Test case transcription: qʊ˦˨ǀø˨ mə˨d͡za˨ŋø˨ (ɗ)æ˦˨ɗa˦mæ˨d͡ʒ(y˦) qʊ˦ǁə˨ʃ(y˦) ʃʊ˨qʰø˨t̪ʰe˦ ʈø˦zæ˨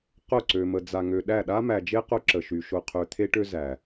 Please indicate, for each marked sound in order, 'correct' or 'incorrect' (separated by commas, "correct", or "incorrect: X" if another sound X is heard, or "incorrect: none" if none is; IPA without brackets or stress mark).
correct, incorrect: e˦, incorrect: y˨